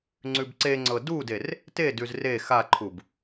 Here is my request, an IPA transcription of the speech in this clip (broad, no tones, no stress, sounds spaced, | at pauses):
ŋ͡ǀ ʉ b ǀ e ŋ͡ǀ ɤ d u d e r | t e d ʉ z r e x a ǃʰ u b